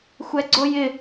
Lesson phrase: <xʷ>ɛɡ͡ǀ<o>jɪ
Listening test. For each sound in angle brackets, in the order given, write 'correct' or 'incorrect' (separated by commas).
correct, correct